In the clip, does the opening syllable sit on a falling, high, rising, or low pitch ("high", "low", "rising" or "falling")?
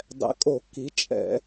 rising